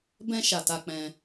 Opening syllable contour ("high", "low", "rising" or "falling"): high